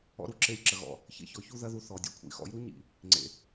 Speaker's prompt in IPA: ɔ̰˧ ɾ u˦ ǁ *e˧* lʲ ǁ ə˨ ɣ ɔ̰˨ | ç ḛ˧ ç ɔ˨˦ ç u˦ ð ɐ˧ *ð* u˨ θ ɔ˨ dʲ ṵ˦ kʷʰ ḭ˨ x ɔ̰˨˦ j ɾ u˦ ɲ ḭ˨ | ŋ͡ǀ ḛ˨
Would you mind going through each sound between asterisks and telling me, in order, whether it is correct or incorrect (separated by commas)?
correct, correct